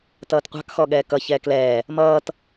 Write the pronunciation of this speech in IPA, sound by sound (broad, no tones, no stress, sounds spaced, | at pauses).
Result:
t ʌː t qʷ ɑ̤ k x ɔ ɠ ɛː k ʌ ç ɛː k l ɛː | m ʌː t